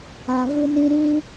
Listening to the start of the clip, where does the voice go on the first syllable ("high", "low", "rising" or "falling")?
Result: low